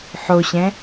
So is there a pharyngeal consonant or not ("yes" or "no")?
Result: yes